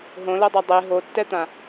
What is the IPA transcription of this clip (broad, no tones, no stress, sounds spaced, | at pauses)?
ɦ õ l ɤ dˤ a dˤ e ɦ o tː ɛ t̪ ã